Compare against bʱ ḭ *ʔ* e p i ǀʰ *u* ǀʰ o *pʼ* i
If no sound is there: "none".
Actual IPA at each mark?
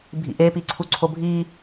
ʔ, u, bʱ

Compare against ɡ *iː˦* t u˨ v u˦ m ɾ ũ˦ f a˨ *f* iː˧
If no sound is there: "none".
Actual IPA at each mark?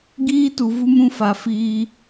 iː˦, f

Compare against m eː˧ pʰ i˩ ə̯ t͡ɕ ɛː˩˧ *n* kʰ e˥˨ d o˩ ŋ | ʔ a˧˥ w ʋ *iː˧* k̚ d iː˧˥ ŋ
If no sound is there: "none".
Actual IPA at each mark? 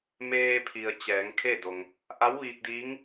ŋ, iː˧

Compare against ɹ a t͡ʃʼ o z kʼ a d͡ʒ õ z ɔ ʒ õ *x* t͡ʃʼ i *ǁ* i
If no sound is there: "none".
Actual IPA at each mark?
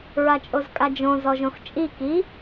x, k

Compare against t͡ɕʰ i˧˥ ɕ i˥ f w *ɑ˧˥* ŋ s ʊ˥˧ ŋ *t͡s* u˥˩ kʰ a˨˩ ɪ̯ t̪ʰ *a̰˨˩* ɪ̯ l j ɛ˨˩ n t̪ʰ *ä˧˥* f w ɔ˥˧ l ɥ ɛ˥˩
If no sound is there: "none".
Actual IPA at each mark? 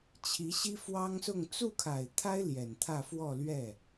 ɑ˥, t͡s, a˥, ä˥˧

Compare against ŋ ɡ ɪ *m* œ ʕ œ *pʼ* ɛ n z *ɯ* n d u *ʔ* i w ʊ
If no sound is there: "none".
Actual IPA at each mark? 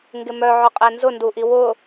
m, qʼ, ʊ, ʔ

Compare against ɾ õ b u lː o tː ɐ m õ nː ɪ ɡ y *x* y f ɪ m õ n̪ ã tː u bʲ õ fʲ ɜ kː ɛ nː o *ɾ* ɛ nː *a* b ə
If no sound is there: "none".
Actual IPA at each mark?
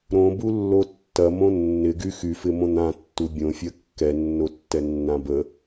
x, tː, ã

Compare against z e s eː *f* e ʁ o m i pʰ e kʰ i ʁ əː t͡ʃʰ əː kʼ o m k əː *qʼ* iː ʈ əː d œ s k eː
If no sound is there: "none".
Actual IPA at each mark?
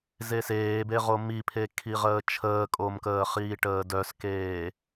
b, χ

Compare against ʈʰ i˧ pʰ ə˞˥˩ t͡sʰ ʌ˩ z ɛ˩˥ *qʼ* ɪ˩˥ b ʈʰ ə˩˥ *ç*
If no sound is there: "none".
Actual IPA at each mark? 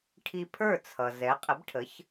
qʼ, ç

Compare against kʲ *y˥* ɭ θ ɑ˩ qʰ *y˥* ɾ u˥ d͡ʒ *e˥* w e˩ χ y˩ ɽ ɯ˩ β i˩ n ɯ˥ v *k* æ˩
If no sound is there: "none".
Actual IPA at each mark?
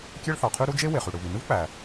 e˥, y˥, e˥, k͡p

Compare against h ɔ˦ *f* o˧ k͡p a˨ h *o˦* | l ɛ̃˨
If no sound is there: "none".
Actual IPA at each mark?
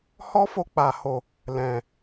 f, o˨

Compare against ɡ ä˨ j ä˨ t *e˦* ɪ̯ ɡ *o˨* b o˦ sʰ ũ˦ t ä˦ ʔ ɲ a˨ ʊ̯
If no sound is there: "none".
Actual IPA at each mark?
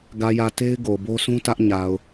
e˦, o˨

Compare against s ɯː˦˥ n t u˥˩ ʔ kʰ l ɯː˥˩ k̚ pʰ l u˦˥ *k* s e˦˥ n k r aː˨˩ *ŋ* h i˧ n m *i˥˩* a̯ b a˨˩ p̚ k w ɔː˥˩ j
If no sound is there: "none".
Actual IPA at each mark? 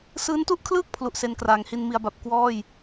ʔ, ŋ, i˩˦

